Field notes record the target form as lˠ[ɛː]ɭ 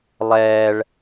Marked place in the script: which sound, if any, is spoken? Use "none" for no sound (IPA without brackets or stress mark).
ɛː